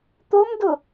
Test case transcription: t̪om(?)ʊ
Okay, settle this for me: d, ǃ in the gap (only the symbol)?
d